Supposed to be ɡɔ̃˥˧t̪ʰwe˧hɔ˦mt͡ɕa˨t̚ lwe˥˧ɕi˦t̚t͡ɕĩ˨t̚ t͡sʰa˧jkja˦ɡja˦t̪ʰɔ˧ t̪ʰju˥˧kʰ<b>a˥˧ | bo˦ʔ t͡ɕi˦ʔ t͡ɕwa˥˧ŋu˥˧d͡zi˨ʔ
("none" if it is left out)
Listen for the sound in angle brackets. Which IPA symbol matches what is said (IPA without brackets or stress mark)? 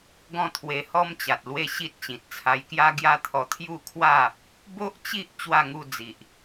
w